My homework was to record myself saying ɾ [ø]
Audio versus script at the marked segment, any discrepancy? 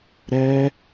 yes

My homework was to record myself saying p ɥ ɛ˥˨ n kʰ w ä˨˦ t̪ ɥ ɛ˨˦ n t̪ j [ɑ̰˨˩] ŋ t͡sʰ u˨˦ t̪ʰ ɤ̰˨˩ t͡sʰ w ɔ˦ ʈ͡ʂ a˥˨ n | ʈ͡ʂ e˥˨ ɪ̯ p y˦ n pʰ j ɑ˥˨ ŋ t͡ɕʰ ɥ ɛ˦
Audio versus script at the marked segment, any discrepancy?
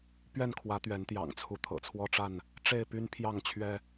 no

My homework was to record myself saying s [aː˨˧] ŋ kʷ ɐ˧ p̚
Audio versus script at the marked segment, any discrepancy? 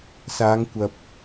no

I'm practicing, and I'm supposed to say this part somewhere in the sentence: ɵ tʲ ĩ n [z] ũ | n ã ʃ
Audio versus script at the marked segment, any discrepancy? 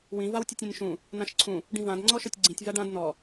yes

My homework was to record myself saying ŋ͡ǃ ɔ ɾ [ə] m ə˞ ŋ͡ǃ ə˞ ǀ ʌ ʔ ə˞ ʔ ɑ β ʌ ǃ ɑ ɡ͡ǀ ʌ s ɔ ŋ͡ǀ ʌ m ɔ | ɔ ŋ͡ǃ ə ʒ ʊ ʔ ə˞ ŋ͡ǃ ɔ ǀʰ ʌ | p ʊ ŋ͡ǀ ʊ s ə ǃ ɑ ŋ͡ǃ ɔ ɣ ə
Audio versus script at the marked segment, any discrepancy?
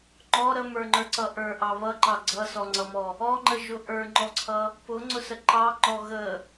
no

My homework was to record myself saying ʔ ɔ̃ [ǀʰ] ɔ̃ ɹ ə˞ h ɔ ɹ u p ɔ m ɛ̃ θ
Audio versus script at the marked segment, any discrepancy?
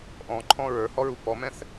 yes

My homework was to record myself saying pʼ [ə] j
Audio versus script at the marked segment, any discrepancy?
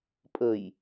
no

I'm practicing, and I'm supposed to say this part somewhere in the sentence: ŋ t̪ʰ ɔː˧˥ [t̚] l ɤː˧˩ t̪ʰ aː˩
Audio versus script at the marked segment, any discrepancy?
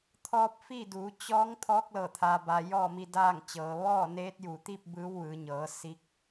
yes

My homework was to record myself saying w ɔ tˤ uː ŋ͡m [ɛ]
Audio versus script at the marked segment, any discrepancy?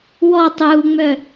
yes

